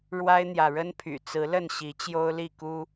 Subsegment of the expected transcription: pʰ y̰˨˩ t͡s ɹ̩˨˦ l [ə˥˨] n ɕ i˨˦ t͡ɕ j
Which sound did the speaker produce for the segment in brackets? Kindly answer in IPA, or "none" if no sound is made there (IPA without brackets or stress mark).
ə˥˨